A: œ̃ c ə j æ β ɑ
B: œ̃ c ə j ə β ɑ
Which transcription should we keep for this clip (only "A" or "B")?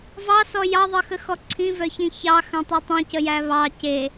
A